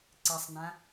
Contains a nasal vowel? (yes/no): yes